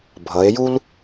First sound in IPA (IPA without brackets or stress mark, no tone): bʱ